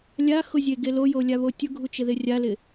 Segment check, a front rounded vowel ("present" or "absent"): absent